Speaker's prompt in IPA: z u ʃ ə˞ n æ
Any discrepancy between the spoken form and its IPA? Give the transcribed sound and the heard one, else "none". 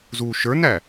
none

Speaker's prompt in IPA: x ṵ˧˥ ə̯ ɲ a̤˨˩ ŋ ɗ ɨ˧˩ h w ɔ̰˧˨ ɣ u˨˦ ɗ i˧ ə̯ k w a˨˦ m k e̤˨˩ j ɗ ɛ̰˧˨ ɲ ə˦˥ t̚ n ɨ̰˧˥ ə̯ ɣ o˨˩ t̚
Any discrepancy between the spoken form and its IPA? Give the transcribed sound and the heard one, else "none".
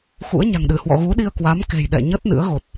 none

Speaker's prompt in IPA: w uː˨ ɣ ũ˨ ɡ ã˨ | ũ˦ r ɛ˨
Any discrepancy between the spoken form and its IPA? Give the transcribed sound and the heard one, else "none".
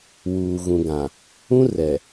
none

